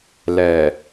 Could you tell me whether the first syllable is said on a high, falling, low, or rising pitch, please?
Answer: low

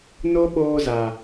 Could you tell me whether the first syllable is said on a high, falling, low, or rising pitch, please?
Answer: high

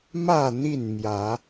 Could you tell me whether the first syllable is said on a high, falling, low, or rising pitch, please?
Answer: falling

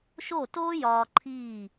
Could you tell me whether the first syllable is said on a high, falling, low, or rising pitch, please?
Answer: falling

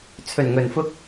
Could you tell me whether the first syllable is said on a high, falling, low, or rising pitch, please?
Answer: low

